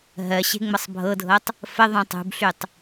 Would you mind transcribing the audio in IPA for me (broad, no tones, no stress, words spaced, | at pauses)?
ɦɜɕe̤ ŋ͡mɤsˤbʱɤdʱɤtˤ | fə ðˤũtˤṳbɬytˤ